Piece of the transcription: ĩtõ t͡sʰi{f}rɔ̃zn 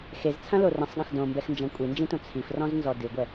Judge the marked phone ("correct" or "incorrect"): correct